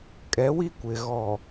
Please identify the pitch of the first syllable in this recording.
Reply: rising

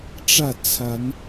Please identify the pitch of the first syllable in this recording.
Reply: falling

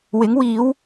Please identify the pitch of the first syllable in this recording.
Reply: rising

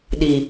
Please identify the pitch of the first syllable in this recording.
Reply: low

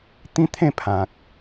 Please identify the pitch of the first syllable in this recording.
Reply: high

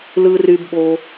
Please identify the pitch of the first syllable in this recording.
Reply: low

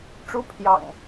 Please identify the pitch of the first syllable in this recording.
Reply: high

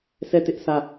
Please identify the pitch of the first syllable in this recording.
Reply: falling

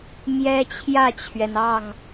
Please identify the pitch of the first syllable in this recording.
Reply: high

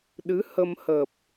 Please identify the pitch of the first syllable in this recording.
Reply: rising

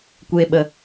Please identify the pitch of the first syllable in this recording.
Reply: low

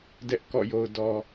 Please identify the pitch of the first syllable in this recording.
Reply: high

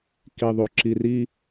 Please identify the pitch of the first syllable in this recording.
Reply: low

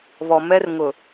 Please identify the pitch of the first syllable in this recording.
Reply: low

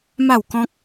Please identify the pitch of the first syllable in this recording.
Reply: falling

